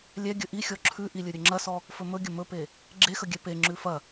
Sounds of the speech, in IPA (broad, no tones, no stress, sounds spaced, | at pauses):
lʲ ɛ ɡʲ ɵ ʔ i xʲ ɔ ǁʰ ʉ ʔ i lʲ ɵ ɾʲ ɵ ŋ͡ǁ ɐ s ɔ | f ɵ m ɵ ɡʲ ə m ɵ p e | ɡ͡ǁ e x ə ɡʲ ɛ p e ŋ͡ǁ ʉ f ɐ